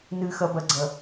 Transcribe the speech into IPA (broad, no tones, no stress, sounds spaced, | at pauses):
n ɨ x ɐ b ɐ ɡ͡ǀ ɐ